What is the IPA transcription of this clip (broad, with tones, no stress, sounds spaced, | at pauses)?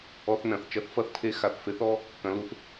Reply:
ɔ˧ θ n ɐ̃˩ θ t͡ʃ ɐ˧ θ f ɐ˧ θ tʰ e˧˥ x a˩˧ θ f e˧˥ θ ɔ˥ | k ɐ̃˩˧ l u˩˧ θ